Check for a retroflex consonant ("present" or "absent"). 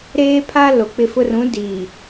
absent